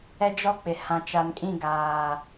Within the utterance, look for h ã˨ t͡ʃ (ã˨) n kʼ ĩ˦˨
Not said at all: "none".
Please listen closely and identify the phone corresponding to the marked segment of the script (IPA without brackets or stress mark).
a˨